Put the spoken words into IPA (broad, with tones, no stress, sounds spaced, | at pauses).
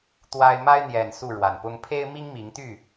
t̪ w a˦ ɪ̯ m a˦ ɪ̯ n̪ j ɛ˨˩ n s u˥˨ ɻ w a˨˩ n p ʊ˦ ŋ pʰ e˦ ɪ̯ m i˦ ŋ m i˨˦ ŋ t̪ y˥˨